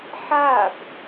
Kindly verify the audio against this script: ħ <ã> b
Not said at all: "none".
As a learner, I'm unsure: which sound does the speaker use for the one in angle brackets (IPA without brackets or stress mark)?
a